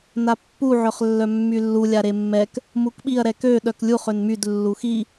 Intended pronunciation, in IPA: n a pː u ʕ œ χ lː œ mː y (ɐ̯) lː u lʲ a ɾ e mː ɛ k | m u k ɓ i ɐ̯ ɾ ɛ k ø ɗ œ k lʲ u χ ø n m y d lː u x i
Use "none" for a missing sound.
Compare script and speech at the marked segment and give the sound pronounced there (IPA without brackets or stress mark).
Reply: none